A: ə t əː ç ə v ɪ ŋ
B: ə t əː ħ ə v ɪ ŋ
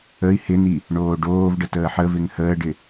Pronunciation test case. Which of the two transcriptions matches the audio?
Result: B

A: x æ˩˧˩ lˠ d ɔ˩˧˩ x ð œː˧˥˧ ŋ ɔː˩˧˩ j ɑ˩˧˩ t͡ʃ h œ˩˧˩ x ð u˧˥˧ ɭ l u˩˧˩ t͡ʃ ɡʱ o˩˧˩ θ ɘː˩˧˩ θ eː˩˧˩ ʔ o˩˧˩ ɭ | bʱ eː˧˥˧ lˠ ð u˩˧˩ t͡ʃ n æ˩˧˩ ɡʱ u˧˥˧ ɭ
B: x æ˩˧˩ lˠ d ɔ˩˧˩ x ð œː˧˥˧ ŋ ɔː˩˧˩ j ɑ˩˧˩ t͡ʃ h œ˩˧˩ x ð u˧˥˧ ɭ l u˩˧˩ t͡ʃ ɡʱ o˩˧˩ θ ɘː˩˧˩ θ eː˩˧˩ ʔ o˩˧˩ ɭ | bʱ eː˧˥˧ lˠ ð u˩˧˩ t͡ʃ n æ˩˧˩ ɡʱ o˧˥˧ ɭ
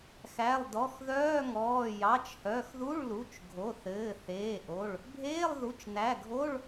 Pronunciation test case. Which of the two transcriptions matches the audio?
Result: B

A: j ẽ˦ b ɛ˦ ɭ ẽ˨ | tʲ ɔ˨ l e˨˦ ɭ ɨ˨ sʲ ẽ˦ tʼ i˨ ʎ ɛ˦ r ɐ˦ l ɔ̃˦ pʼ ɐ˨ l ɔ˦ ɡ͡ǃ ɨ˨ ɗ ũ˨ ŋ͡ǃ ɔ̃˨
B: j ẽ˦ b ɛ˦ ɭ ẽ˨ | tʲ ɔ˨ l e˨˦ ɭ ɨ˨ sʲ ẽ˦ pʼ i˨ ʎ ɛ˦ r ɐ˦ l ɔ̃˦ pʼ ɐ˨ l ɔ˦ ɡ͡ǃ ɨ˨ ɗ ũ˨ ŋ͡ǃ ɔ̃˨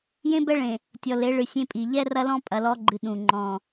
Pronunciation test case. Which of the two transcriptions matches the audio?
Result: B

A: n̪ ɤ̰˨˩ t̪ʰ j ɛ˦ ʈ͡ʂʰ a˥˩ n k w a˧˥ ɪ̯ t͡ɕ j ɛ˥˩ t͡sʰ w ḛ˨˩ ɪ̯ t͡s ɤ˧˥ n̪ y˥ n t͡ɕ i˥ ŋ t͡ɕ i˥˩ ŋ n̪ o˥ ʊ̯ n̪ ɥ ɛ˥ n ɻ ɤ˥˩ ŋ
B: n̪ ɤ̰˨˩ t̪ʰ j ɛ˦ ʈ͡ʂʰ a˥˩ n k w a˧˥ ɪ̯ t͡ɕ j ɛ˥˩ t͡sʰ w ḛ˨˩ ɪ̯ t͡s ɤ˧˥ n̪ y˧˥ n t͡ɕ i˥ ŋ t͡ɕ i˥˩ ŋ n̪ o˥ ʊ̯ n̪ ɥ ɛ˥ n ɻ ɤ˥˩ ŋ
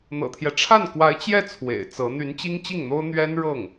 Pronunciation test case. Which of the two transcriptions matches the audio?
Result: B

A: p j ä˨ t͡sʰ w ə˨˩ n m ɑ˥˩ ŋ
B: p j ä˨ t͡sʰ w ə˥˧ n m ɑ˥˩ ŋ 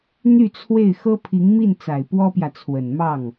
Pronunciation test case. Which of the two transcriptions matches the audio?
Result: A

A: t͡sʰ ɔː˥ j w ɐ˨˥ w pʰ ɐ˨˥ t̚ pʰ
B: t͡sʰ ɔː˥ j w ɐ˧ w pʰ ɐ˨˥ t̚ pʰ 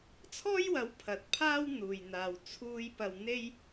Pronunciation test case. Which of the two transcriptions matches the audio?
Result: A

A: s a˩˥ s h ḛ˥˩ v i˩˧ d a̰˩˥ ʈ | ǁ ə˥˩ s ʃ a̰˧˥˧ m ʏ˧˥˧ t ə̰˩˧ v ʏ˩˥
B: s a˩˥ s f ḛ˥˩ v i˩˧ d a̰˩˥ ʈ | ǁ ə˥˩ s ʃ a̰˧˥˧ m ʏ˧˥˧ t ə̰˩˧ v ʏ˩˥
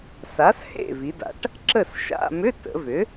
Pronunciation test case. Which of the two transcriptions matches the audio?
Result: A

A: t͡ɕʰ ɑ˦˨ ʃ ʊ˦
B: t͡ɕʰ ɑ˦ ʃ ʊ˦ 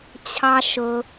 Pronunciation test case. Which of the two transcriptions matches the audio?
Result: B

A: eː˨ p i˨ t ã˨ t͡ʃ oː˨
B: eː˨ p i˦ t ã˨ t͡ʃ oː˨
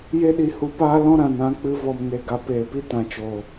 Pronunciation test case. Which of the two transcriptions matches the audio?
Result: B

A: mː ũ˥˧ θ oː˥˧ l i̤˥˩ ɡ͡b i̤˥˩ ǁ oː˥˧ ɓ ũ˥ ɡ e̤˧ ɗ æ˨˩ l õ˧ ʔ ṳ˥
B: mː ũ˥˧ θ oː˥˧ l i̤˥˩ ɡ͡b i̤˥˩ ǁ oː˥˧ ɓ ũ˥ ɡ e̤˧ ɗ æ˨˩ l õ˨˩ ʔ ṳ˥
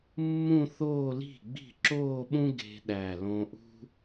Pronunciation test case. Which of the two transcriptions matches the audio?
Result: A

